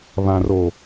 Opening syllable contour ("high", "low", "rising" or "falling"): low